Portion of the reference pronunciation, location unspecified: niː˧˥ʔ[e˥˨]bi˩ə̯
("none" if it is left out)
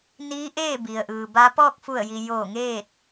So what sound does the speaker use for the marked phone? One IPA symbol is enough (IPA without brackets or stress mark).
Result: eː˥˨